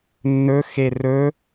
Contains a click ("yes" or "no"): no